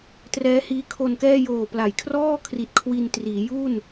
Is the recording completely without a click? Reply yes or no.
yes